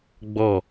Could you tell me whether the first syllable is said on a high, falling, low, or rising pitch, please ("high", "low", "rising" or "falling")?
falling